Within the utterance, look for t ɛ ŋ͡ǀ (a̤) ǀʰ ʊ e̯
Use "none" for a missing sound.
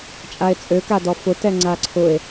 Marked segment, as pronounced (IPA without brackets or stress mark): a